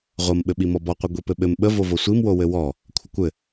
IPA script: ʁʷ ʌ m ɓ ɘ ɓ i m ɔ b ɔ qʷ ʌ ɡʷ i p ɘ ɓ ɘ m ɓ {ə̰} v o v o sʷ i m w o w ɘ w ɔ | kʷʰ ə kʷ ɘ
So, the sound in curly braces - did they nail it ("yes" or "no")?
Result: no